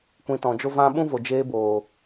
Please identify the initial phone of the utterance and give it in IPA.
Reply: kʷ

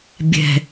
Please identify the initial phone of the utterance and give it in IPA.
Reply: bʲ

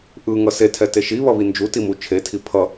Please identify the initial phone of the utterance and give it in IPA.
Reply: ʔ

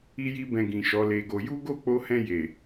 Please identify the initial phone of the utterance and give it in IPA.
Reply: i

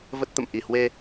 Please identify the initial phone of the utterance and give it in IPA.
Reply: v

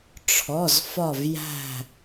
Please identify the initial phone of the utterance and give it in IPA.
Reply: ʈ͡ʂʰ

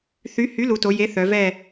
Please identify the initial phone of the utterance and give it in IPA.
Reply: θ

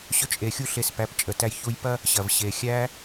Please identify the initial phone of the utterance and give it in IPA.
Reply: ɕ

